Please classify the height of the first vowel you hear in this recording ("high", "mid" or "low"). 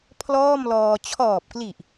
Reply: mid